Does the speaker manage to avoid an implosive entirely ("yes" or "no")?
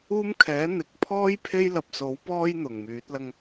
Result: yes